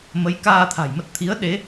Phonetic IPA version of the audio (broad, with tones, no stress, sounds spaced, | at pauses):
m ə˨˦ j k aː˧ t̪ʰ a̤˨˩ j m ə˦˥ t̚ t̪ʰ i˨˦ ə̯ ɗ e˨˦